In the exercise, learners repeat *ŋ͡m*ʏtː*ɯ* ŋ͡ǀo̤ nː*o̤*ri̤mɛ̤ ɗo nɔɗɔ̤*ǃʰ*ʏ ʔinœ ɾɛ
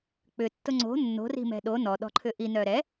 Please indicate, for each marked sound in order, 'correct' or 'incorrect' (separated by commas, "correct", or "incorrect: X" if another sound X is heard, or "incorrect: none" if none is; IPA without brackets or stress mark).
incorrect: k͡p, incorrect: ʊ, correct, correct